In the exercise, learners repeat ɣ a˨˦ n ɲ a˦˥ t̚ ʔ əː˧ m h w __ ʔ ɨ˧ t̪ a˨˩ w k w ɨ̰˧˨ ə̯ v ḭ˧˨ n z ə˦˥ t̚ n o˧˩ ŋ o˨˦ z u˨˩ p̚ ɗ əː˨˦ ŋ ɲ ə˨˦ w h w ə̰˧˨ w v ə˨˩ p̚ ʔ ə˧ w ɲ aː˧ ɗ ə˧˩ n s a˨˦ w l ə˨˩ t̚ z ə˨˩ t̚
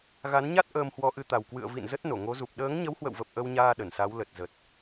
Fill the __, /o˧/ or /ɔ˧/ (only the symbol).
ɔ˧